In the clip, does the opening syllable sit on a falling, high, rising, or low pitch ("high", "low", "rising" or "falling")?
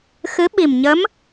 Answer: rising